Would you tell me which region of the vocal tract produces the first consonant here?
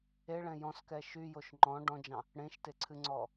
retroflex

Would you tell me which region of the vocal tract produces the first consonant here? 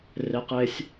tongue tip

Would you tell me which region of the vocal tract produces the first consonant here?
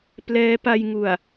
lips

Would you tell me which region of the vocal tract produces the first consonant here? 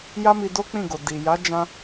palate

